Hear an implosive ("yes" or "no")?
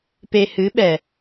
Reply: yes